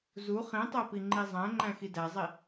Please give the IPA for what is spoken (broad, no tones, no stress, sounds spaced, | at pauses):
z u χ ĩ tˤ æ p i ŋ͡ǃ i zˤ æ̃ ŋ͡ǃ æ̃ x i d æ zˤ i